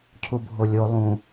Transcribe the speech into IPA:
cʰ u bʱ o lʲ o lˠ ũ

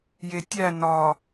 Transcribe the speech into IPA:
j e tʲ æ n ɒ

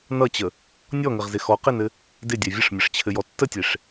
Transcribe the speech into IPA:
n ʌ t͡ɕ ə | nʲ ɔ ŋ ɘ ʁ z ɪ x ɔ q e n ɘ | d ɪ dʲ ɛ vʲ ə ʂ mʲ ɘ ʂ t͡ɕʰ ɘ j ɔ tː ə tʲ e ʂ

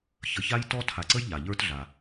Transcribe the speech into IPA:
ç ə˨ ç a˥ j t ɔ˥ tʰ a˨ ǀ ə˥ j ʎ a˩ ʎ ə˞˦ t ɮ a˩

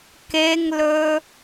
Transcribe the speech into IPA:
k e ŋ l ɵ

